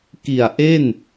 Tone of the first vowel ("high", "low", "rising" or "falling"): low